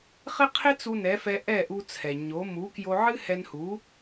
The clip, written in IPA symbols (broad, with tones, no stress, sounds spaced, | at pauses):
χ ɪ˥ qʰ ɪ˥ t͡s u˧ n ɛ˩˥ f ɛ˧ ʔ ɛ˥˩ ʔ u˧ t͡sʰ ɛ˩ ɲ o˩˥ m u˩˥ k j o˧ ʕ ɨ˥ h ɛ˧ n h u˩˥